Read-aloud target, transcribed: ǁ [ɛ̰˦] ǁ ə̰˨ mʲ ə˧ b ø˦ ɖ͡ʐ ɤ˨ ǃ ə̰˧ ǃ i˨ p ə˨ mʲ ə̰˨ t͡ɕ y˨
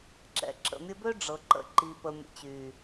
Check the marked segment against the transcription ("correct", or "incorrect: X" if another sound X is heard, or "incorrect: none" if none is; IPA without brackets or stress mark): incorrect: ɛ̰˧